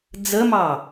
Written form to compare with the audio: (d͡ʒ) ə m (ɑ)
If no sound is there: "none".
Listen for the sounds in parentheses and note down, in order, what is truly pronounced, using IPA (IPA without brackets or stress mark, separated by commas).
d͡z, ɑ